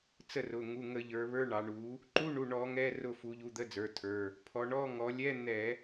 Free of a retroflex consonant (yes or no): no